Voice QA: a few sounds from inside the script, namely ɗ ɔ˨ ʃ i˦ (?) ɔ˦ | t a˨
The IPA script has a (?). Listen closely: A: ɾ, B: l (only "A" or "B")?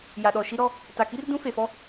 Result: A